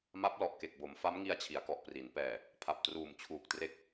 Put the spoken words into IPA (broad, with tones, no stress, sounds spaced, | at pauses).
m a˦˥ p̚ l ɔ˨˩ ʔ k e˨˩ k̚ b o˩˦ m f a˦˥ m ŋ i˧ a̯ t͡ɕʰ i˩˦ a̯ k ɔ˨˩ ʔ p r i˩˦ n p ɛː˨˩ | pʰ a˨˩ p̚ t r uː˨˩ m t͡ɕʰ uː˨˩ k̚ t r e˦˥ k̚